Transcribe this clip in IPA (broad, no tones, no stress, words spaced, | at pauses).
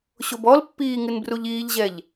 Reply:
ɕobɔlpːiː ŋɨnbruʎiːʎʑɛʎ